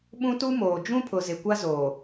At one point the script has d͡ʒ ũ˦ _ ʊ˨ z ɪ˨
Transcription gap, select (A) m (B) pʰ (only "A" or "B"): B